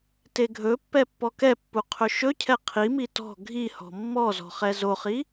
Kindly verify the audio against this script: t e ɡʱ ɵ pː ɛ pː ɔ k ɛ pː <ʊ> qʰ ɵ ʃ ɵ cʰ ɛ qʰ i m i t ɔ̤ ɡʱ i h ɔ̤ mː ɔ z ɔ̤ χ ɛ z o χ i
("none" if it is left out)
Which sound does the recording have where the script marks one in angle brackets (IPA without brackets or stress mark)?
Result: u